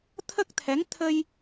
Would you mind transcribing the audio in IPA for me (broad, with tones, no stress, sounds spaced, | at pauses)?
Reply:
t̪ʰ ə˦˥ k̚ t̪ʰ ɛ˧˥ ŋ t̪ʰ ə˧ j